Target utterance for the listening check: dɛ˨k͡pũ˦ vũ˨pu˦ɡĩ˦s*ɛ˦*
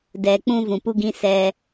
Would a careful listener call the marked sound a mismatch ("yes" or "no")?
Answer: no